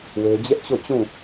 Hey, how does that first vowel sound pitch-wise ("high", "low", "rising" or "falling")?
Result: high